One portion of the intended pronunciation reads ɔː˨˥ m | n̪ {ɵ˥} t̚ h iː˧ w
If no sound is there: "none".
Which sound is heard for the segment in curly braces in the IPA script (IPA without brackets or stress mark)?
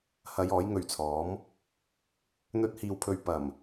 ɵ˥